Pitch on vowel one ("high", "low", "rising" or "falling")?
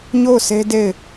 falling